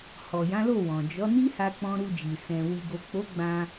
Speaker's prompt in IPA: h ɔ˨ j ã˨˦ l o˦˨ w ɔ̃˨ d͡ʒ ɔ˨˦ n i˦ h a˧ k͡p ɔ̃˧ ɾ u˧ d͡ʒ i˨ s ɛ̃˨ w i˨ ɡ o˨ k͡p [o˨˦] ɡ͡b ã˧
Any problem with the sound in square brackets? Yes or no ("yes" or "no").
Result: no